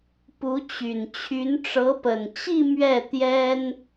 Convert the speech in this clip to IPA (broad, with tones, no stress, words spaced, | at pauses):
pu˧˥t͡ɕy˨˩n t͡ɕʰy˧˥nʈ͡ʂɤ˧˥pə˨˩n t͡ɕi˥˧ mɥɛ˥˩ t̪jɛ˥n